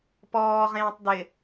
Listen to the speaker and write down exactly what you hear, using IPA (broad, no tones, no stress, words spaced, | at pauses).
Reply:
pɔːʁẽːtˤ dɪ